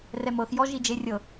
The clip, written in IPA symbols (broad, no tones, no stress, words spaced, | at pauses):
rɛmɤx jɔʒid͡ʒerʲɤ